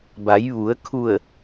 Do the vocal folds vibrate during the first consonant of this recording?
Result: yes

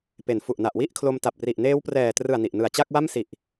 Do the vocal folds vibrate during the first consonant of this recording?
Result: no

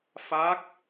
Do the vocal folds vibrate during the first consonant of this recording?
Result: no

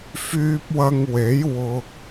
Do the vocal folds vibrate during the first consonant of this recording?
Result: no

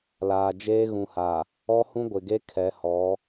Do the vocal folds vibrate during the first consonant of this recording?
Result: yes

